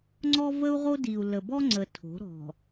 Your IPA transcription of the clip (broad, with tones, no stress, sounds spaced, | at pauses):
ŋ͡ǀ ɔ˦ v ə˦ u̯ ʁ o˦ d i˨ u̯ l ə˨ b ɔ˦ ŋ͡ǀ ə˨ tʰ o̤˨˦ ɾ ɔ̤˨